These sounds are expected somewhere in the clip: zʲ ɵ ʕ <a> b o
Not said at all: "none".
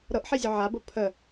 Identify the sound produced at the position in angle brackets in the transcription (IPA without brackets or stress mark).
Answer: a